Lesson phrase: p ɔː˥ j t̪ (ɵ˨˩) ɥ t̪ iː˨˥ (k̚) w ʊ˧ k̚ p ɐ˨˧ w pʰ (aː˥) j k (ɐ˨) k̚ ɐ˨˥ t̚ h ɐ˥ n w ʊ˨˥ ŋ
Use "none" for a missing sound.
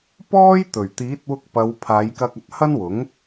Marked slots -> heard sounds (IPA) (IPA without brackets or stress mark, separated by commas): ɵ˨˩, t̚, aː˨˧, ɐ˧